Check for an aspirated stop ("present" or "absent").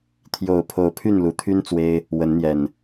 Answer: present